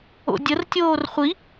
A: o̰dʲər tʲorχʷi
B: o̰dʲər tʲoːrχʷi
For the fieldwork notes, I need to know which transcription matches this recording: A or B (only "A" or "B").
B